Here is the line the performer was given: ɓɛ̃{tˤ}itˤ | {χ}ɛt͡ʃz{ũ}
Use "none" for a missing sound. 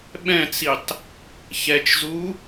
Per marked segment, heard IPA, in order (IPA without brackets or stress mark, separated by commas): t͡s, ç, u